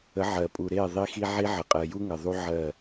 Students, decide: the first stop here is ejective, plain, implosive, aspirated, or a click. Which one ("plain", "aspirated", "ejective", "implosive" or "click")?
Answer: ejective